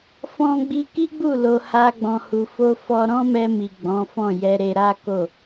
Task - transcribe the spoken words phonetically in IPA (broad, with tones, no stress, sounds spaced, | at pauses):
f ɔ̃˧ ɡ͡b i˧ k i˦ ɡ͡b u˦˨ l o˧ h a˦ ɡ͡b ɔ̃˧ h u˧ f o˧ f ɔ˧ ɾ ɔ̃˦ m ɛ˧ m i˨ ɡ͡b ɔ̃˨˦ f ɔ̃˦˨ j ɛ˧ ɾ e˧ ɾ a˦ k o˦˨